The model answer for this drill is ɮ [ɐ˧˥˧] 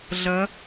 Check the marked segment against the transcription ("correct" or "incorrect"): incorrect